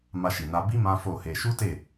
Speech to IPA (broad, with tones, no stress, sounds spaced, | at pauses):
m a˧ ʃ i˨ n a˧ b i˦ m ã˦ f o˦˨ h e˧ ʃ u˦ t e˦˨